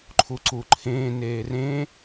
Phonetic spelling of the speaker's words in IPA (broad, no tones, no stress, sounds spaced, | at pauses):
ǃʰ u ǀ u ǃʰ ẽː n eː r ẽ